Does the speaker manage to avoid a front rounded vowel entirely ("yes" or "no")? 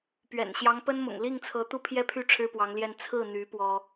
no